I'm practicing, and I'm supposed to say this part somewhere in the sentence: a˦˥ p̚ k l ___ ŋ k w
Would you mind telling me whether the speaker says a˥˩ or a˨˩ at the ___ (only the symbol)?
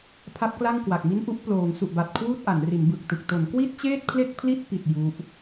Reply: a˥˩